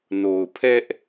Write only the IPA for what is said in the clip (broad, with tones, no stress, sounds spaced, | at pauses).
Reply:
n o˨ ʊ̯ pʰ ɛ˦ ʔ